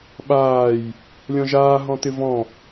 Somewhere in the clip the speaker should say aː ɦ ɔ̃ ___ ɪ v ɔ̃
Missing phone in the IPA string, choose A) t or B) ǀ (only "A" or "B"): A